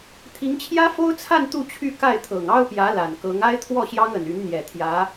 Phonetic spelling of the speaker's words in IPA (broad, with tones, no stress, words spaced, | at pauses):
t̪ʰi˧˥ŋt͡ɕʰjä˥fo˥ʊ̯t͡sʰa˥˧n t̪u˥˧t͡ɕʰy˥˧ ka˥˩ɪ̯t̪ʰɤ˨˩ŋ ɑ˥ʊ̯pjä˧˥ la˨˩nkɤ˧˥ŋ a˥ɪ̯t̪ʰwɔ˥˩ɕjɑ˥ŋə˨˩n y˧˥nn̪jɛ˨˩t̪ʰjä˧˥